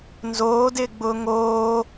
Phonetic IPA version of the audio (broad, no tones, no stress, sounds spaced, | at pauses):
n z oː d ɪː ɡ͡b ʊː ŋ oː